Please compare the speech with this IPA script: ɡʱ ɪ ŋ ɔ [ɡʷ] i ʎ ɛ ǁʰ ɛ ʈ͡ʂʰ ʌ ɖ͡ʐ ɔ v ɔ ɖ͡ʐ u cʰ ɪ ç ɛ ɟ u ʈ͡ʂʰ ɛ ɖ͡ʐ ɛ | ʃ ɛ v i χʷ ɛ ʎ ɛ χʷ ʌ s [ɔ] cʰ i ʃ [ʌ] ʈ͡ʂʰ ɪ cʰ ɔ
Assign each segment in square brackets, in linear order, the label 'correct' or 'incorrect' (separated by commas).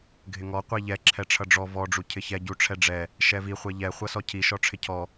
incorrect, correct, incorrect